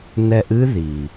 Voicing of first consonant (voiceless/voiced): voiced